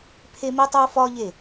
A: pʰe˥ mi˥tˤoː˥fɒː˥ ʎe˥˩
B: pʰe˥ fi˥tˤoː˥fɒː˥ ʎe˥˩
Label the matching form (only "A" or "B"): A